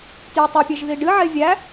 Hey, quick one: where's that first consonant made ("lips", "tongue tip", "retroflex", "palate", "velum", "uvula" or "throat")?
tongue tip